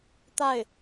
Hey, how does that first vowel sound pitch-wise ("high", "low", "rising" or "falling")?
falling